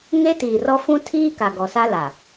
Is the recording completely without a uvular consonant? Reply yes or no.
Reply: yes